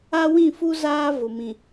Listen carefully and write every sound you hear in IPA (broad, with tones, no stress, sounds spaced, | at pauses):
a˦ w ĩ˦˨ f u˦ z aː˦ v ʊ˨ m ĩ˨